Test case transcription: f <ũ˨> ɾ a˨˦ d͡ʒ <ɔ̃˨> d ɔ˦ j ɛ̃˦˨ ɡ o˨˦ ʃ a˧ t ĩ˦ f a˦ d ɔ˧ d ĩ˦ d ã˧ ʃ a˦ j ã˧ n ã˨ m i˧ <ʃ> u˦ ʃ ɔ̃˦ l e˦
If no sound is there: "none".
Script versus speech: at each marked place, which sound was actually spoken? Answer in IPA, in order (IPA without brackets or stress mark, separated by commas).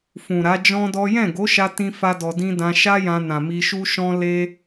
ũ˨, ɔ̃˦, ʃ